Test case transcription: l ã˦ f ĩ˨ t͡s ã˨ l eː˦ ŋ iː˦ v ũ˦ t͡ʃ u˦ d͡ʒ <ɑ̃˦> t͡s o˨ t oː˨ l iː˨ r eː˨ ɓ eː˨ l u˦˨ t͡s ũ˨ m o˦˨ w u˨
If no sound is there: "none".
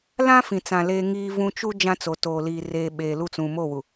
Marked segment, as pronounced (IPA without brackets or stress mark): ã˦